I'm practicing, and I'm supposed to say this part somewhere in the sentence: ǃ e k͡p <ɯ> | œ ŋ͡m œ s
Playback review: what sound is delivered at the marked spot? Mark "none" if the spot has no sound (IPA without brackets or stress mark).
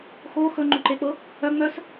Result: ɤ